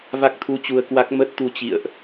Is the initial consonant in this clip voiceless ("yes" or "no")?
no